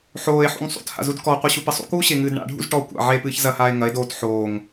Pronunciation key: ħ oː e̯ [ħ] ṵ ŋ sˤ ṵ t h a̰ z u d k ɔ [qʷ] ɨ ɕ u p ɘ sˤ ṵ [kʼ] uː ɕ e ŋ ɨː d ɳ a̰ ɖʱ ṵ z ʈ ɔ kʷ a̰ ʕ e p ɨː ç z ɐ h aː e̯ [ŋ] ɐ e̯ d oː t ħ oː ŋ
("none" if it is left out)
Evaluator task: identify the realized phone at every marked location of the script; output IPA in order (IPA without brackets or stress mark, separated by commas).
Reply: ħ, qʷ, k, ŋ